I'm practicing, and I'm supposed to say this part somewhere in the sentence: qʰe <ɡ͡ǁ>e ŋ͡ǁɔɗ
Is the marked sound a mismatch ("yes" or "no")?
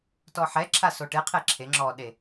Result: yes